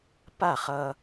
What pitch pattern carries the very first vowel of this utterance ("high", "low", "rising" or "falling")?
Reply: falling